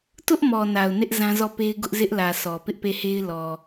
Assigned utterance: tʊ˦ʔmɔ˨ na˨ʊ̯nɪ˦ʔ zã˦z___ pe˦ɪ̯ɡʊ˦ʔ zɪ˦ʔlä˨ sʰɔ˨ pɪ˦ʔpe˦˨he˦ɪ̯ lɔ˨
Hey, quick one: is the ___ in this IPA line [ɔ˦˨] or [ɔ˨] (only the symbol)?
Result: ɔ˦˨